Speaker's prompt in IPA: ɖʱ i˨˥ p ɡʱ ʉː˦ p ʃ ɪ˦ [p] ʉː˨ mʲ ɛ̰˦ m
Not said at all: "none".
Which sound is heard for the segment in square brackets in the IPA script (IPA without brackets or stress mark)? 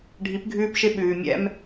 ɓ